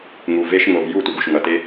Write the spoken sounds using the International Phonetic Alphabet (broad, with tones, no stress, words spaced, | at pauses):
ŋu˨ ve˦ʃ ŋo˨vju˦˨ tʷʌ˧ɡu˨ʃ ŋʌ˨te˦